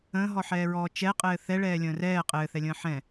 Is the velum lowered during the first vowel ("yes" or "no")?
yes